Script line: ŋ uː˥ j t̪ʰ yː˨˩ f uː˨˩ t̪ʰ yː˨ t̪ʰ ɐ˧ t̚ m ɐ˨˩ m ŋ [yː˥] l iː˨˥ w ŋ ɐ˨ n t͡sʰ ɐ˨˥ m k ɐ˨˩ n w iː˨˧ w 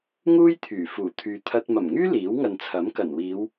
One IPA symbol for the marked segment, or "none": yː˥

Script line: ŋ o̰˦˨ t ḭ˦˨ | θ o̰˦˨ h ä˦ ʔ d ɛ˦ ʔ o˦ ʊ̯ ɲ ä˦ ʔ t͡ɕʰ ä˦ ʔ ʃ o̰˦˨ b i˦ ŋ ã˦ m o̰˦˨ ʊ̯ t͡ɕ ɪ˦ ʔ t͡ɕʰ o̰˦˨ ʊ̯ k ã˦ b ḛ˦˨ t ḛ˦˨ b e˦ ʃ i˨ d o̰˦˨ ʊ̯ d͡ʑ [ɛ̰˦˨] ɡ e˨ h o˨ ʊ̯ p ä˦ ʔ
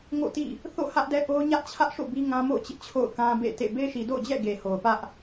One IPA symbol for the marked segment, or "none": ɛ̰˦˨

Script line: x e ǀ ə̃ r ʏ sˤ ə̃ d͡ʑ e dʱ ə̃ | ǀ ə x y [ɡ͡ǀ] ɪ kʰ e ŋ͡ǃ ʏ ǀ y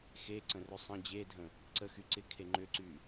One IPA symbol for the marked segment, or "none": ǀ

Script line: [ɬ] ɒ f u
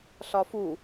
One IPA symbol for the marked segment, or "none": ɬ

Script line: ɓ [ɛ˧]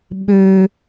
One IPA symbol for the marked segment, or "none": ø˧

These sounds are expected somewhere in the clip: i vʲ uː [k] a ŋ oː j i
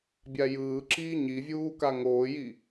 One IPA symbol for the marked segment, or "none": k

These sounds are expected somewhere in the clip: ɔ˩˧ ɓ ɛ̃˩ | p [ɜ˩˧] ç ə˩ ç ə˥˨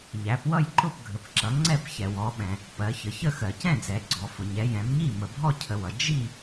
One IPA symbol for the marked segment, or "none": ɜ˩˧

